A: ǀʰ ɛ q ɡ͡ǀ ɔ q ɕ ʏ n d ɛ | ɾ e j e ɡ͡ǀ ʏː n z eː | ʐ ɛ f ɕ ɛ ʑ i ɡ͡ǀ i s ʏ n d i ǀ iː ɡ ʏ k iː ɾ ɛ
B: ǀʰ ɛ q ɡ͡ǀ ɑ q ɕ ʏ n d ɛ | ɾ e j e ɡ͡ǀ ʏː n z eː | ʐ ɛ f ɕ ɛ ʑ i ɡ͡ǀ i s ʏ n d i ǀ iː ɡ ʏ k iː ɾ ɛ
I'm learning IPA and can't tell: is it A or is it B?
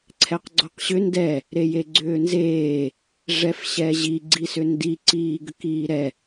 A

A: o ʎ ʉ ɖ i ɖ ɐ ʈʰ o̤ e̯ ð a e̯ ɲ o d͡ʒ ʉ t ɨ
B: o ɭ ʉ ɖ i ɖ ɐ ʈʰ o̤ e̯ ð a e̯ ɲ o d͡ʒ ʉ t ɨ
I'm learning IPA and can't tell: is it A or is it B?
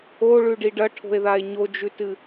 B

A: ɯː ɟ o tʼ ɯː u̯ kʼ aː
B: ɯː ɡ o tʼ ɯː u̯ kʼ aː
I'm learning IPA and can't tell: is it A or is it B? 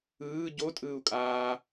A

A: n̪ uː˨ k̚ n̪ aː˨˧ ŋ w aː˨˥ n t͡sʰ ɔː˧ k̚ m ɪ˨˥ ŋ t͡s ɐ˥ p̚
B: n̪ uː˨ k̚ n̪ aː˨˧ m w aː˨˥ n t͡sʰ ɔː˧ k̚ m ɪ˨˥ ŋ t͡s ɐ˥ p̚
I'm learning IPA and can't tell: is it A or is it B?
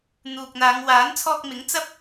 A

